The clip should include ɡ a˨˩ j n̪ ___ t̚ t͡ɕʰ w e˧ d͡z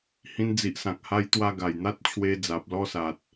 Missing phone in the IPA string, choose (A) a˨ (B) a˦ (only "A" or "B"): B